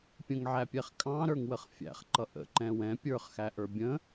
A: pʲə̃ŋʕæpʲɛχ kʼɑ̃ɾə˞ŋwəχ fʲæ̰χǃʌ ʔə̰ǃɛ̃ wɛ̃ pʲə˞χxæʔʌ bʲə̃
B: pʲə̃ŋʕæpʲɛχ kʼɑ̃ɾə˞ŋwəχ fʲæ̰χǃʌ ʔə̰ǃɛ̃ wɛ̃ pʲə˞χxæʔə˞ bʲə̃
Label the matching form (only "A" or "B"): B